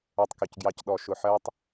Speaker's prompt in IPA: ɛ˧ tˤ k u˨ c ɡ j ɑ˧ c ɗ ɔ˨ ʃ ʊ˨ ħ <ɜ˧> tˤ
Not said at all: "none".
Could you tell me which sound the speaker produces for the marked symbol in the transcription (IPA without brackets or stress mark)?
ɜ˧